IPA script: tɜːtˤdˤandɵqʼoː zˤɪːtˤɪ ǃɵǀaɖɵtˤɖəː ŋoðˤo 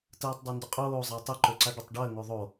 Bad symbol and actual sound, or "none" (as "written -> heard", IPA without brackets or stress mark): none